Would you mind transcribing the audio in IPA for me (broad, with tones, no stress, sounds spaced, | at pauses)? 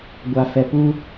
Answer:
ɡʷ a˨ f ɛ˨ p u˦